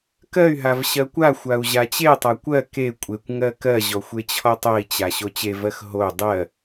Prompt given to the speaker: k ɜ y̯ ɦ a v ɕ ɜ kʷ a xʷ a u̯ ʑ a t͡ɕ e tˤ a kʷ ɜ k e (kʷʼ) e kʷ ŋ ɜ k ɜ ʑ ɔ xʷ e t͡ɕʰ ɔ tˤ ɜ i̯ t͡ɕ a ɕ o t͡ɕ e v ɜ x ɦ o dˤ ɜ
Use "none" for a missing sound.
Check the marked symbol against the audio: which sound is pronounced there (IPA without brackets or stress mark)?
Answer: kʷʼ